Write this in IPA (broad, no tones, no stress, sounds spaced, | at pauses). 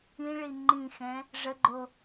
ĩ ɭ i ŋ͡ǃ ĩ x ɛ̃ | ʐ ə ɡ͡ǃ o